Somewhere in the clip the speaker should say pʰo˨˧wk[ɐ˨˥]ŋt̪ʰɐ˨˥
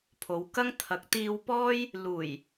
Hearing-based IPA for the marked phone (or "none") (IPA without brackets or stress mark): ɐ˥